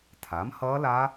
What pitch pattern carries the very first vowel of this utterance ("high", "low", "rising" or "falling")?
rising